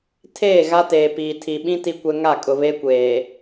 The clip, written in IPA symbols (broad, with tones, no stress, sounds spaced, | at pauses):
tʰ eː˦˨ ɣ a˦ t eː˨ p iː˨ tʰ i˨ ɓ ĩ˦ t i˦ kʷ ɛ˦ ŋ a˦˨ kʼ ʊ˨ β e˦ kʷ eː˨